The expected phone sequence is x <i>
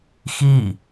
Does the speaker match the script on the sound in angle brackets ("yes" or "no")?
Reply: yes